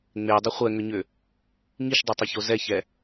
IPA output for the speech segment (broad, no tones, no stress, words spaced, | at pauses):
ŋ͡medˤə χʷɛŋʏɲʏ | ŋiʃdˤetˤʏço zɛçɛ